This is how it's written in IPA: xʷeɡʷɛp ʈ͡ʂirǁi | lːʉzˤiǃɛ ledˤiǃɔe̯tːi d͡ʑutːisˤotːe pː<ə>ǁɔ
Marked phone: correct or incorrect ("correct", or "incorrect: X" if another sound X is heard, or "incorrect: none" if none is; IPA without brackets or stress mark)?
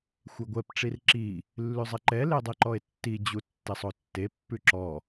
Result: incorrect: ʉ